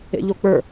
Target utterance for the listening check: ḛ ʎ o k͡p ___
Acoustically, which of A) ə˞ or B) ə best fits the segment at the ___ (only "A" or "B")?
A